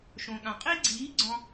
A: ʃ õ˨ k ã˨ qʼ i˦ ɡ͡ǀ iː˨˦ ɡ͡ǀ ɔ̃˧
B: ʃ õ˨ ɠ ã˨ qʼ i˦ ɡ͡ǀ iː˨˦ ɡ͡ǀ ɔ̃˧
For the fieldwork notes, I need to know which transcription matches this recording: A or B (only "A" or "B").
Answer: B